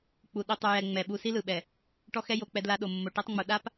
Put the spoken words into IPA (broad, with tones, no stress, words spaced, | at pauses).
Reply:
k͡pu˨ ɗi˨tˤu˨jɛ˨ ŋ͡mɛ˨ ɓu˨ si˦lɯ˨ɓɛ˨ | ʈɔ˦xɛ˦ jo˨ k͡pɛ˦dla˦ ɗo˨mːo˨ ʈi˦tˤŋ͡mu˨ ɗa˦p